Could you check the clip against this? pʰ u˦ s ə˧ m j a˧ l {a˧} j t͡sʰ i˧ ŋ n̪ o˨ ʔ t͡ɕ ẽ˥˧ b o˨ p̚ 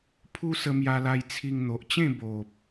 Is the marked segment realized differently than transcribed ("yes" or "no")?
no